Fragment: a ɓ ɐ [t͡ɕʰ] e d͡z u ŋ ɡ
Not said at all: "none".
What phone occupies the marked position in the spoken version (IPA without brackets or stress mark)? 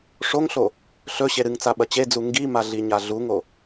t͡ɕ